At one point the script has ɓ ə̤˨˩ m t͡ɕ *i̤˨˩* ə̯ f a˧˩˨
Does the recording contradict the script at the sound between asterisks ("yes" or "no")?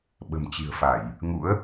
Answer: no